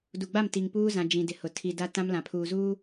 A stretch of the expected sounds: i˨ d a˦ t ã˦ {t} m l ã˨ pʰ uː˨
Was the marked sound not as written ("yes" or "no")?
yes